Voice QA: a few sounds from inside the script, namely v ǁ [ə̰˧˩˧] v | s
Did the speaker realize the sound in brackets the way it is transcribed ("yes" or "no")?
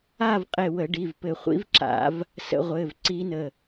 no